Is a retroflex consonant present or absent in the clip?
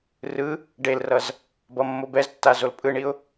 present